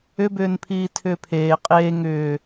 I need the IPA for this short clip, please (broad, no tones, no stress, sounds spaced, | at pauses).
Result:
ʏ b ʏː n pʰ iː tʰ ʏː pʰ eː qʼ eː ŋ ʏː